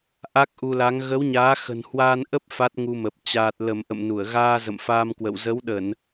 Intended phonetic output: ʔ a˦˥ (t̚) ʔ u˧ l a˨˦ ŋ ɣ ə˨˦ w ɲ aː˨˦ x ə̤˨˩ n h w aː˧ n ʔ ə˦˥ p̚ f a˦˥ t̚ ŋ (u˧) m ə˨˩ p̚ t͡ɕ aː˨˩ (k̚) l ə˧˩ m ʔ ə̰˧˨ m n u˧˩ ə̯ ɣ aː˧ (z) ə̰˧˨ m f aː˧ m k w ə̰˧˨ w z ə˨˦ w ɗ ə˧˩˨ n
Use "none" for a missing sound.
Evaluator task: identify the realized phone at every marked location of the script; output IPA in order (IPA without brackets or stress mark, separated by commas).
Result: k̚, u˧, t̚, z